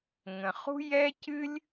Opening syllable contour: low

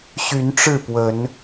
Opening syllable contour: rising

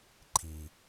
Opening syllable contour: low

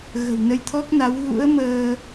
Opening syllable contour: low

